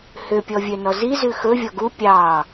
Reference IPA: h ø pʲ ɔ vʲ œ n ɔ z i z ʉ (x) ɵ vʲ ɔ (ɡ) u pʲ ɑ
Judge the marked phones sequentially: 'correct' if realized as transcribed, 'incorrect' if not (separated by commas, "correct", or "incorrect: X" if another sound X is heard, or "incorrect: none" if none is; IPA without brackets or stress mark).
correct, correct